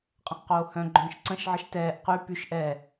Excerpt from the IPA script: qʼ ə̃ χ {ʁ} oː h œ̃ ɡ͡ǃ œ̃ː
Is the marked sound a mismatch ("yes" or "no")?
yes